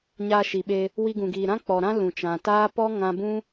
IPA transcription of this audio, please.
ɲa˧ʃi˨ɓe˧ | wi˧ɡũ˨ɡiː˨ ɾã˦k͡pɔ˨ɾã˦ lũ˨t͡ʃã˨taː˦ pɔ˦ ŋã˧bũ˦

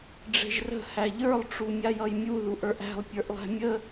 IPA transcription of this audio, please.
ɖ͡ʐe̤ʒrə̤ hæʎə˞lˠ ʈ͡ʂumʲajʌjmʲu ðuʔə˞ʔæ̤lˠ pʲə˞ʔlˠæ̤mʲə

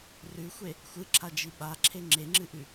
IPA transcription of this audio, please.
rʉxʷe | xʷɨǁʰad͡ʒi ɓaǁʰe ŋ͡ǁeŋ͡ǁɨʔʉ

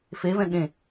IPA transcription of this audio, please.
fevɛ̃ ɠẽ

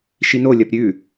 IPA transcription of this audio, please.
ʃinolʲɐp ɾʲʉ

